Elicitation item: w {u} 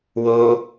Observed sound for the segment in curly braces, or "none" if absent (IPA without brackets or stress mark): o